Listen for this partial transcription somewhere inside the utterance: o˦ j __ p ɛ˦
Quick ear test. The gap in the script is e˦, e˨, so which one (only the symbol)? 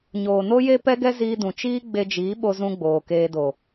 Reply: e˦